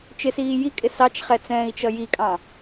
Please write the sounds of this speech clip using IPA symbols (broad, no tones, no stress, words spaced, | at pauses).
t͡ʃɪsiː jikʼɪ sɑt͡ʃχɛt͡sɛ̃ːi̯t͡ʃʌ jikʼɑ̃